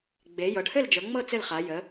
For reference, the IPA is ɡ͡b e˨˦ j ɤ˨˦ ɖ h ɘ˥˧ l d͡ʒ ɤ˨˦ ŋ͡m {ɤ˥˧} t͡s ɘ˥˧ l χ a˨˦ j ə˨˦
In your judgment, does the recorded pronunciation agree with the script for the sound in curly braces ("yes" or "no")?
yes